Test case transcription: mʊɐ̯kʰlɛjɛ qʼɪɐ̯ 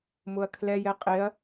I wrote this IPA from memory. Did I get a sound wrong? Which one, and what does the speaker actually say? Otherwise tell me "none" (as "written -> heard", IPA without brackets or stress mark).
none